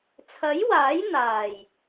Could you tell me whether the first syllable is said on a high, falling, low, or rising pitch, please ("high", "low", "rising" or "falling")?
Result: rising